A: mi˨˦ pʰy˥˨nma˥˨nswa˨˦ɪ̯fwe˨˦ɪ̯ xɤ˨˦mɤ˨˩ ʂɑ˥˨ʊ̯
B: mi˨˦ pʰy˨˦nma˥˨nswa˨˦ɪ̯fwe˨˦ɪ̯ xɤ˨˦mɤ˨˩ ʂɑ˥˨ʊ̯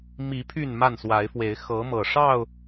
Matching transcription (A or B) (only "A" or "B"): A